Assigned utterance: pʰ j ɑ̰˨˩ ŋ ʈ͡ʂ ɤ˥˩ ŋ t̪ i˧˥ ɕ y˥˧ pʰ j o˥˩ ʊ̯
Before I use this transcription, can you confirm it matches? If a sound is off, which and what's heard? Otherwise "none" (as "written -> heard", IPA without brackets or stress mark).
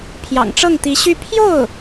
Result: none